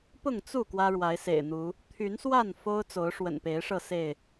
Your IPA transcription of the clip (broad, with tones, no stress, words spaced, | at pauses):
pʊ˥˨ŋt͡su˥˨ kwä˦ɻwa˨˦ɪ̯sḛ˨˩ɪ̯n̪u˨˦ | t̪ʰy˨˦nswa˥˨n fo˦ʊ̯t͡so˨˦ʊ̯ʂwə̰˨˩n pe˨˦ɪ̯ʂɤ˥˨ se˥˨ɪ̯